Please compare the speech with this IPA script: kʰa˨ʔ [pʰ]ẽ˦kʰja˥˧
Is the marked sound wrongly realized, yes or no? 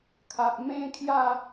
yes